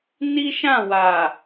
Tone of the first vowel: high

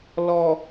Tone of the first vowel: low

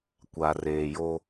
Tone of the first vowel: low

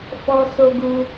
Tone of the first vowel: high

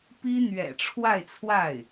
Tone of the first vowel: high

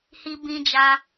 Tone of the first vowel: high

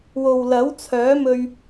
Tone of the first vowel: low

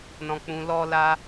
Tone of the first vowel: low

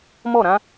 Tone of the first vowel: falling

